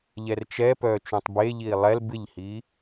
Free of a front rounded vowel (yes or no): no